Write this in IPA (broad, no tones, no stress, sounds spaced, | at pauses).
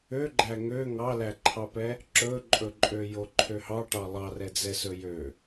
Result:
ø ɡ͡ǃ æ ŋ ø ŋ ɑ l æ ǃʰ ɑ p ɛ | ǁ ɵ ǃʼ ɵ ǃʼ ø j o ǃʰ ø h ɑ ʈ ɑ lˠ ɑ r ɛ d͡z ɛ s ɵ j ø